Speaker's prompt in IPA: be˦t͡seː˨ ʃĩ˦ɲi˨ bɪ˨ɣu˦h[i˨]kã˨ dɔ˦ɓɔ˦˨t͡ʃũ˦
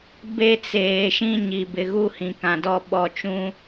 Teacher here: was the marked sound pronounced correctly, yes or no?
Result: no